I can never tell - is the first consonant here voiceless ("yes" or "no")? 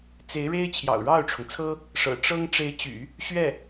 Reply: yes